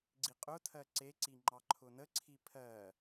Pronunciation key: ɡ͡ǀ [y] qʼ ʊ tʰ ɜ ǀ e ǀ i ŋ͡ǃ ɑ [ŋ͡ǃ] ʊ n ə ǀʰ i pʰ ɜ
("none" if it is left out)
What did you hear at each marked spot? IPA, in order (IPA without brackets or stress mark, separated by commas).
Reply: i, ǃʰ